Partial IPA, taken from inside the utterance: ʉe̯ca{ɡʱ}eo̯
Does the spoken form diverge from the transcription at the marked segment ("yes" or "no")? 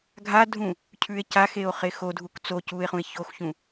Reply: yes